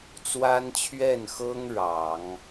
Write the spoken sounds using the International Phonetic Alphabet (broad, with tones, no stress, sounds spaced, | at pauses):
t͡s w a˥ n t͡ɕʰ ɥ ɛ˥˩ n x ɤ˥ ŋ ɻ ɑ˨˩˦ ŋ